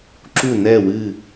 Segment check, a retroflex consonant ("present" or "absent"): absent